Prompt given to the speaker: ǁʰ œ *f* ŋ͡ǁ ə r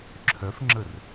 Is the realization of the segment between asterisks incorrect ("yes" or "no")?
no